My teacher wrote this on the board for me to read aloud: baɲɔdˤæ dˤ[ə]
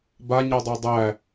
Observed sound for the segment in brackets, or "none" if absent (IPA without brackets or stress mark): æ